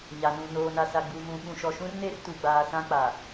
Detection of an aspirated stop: absent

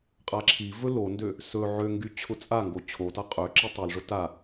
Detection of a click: present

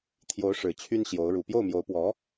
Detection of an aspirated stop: present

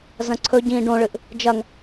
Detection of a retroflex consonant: present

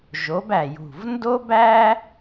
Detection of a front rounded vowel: absent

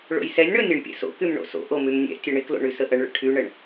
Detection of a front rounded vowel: present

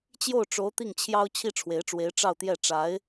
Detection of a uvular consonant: absent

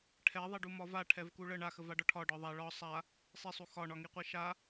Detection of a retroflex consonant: present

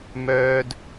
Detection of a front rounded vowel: present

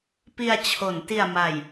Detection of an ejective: absent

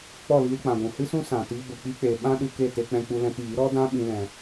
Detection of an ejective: absent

